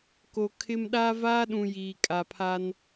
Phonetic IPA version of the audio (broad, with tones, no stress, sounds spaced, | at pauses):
k o˨ kʰ ɪ˦ m ɗ aː˦ v aː˦ ɗ ũ˨ j iː˨ kʼ a˨ pʰ a˦ n